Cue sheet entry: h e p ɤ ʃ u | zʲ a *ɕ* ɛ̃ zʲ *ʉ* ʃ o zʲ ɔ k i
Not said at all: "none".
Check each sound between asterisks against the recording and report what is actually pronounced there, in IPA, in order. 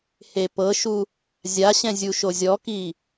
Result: ɕ, u

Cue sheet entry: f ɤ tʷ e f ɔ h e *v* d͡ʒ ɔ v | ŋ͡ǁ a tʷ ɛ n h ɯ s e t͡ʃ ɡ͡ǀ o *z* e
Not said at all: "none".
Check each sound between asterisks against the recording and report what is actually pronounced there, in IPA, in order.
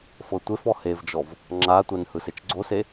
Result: v, s

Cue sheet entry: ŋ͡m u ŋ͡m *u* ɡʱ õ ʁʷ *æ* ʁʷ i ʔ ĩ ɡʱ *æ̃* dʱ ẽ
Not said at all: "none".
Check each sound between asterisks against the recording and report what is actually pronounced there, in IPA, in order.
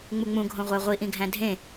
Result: ũ, æ, æ̃

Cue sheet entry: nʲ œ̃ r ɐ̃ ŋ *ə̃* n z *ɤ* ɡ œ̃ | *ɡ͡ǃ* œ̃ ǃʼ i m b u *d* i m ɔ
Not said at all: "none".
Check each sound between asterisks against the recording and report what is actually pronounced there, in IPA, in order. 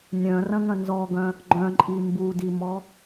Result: ɐ̃, ɔ, ɡ͡ǃ, d

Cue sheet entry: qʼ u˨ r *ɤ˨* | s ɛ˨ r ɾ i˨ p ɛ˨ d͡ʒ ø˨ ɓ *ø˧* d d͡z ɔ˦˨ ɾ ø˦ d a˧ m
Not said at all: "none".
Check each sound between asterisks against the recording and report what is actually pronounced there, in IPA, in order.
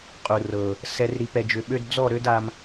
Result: ɤ˨, ø˧

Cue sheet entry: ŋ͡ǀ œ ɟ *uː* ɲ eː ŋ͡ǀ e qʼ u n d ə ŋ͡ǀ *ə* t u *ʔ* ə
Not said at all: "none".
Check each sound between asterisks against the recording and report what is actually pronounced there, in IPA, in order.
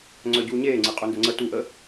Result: uː, ə, ʔ

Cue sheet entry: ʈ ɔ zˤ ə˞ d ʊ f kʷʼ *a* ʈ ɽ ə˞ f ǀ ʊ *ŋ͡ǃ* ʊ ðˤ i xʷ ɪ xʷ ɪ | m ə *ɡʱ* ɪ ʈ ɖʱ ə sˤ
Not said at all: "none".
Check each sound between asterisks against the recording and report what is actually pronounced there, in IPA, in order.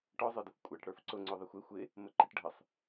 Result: æ, ŋ͡ǀ, ǃ

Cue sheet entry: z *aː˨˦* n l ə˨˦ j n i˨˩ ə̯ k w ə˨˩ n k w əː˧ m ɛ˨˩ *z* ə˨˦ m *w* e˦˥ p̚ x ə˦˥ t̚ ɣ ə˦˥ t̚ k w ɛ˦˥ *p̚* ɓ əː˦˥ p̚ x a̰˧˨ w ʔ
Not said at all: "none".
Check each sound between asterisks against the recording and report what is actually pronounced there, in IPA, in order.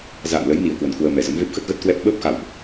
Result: a̰ː˧˨, z, v, p̚

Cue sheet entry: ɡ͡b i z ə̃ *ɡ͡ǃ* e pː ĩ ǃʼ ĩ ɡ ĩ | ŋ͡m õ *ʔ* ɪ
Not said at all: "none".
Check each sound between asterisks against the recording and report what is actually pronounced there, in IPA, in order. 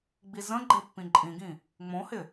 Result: ɡ͡ǃ, h

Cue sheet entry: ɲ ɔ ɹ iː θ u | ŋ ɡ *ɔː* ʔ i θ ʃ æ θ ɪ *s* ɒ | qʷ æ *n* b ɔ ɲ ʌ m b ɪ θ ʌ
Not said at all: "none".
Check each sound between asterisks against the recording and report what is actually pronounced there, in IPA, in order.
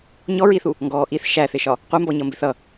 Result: ɔː, ʃ, m

